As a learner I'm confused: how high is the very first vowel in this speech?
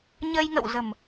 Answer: mid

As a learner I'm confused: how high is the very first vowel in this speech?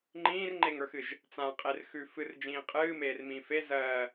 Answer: high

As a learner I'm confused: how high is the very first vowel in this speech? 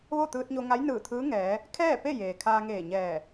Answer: mid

